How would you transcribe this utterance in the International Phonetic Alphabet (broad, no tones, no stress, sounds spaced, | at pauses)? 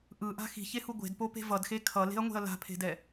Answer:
ʔ ɯ ʔ a̤ x i̤ ç e h u ɡʷ e̤ d p o p e̤ v ʌ d x e kʰ ʌ l e̤ ɐ̯ ŋʷ e̤ ɐ̯ l a̤ pʰ e̤ d ɛ